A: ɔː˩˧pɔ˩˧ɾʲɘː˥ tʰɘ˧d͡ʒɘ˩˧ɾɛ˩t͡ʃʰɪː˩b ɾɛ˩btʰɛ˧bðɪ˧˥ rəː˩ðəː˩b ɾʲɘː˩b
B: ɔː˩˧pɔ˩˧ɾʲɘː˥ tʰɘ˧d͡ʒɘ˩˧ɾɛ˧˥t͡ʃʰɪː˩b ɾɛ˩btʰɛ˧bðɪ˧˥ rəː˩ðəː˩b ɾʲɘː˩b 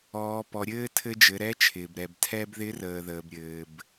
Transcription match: B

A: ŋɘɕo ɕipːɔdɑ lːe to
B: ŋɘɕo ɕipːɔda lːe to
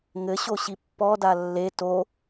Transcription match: B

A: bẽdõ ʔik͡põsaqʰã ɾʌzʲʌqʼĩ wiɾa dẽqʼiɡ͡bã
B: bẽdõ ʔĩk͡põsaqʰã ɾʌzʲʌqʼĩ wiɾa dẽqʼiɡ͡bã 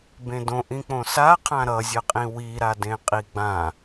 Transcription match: B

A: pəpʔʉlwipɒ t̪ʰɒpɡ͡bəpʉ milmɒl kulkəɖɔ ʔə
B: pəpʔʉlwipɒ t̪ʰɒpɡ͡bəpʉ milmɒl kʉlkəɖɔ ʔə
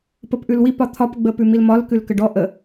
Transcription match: B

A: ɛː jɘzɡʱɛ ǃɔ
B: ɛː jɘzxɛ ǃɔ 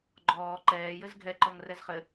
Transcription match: A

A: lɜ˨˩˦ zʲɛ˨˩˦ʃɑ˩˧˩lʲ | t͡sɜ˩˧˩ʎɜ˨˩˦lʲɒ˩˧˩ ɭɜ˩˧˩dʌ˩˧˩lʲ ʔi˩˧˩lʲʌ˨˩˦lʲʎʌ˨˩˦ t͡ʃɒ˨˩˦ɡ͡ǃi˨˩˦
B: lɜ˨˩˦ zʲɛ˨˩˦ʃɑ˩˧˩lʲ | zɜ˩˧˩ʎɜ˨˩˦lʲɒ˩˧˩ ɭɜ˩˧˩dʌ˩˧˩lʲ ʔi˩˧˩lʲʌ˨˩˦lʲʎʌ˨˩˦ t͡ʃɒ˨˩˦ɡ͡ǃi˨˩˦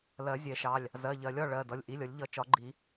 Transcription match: B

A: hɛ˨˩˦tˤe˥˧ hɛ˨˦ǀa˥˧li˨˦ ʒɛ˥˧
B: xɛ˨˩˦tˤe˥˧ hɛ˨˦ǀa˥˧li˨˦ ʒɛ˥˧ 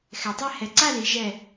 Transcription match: B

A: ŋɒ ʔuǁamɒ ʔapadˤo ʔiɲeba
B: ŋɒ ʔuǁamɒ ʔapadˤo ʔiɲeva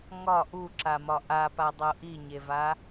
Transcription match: B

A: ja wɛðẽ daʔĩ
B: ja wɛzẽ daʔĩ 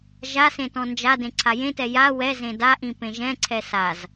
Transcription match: B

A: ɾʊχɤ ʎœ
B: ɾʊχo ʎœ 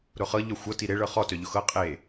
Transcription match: A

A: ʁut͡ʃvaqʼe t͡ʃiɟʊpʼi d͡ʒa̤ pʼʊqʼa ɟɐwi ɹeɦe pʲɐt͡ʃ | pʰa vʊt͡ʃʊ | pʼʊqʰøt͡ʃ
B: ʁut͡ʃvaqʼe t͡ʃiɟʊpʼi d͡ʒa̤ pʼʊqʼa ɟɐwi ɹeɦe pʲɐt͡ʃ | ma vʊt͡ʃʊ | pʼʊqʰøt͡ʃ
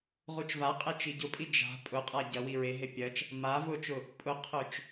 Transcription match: B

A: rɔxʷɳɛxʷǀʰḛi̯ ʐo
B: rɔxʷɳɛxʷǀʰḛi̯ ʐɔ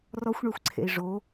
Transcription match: A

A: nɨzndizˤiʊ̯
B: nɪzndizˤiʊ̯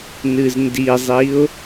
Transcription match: A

